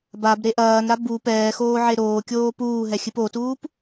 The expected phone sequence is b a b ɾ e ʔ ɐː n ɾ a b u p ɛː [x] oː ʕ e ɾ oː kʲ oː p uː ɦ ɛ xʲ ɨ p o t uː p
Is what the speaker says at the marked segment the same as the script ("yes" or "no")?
yes